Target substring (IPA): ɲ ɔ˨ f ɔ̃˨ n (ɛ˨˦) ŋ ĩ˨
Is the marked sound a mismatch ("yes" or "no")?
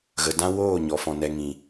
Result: yes